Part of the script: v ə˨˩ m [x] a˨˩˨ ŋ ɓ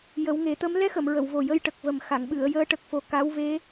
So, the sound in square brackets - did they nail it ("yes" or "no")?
yes